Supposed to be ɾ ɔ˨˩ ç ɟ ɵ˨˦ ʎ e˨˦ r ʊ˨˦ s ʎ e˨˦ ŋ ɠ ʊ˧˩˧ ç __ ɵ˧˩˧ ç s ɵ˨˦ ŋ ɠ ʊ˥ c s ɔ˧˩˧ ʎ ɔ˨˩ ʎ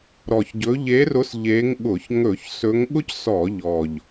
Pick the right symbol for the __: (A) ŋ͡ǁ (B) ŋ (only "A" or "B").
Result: B